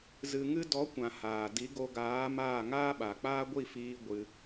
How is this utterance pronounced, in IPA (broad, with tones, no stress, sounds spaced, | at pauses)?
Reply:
z ɨ˧ ŋ ɨ˦ d ɔ˨˦ kʷ ã˨ h aː˨ d i˨˦ ɡ o˧ ɡ aː˨˦ m aː˦˨ ŋ aː˦ ɓ a˨ k͡p aː˦ ɡʷ i˦˨ f iː˧ ɡʷ ɨ˦